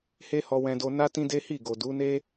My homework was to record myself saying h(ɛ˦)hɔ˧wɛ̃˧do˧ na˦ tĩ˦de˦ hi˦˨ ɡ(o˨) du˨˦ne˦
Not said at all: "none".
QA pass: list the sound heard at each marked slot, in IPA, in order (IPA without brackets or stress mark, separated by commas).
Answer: e˦, o˨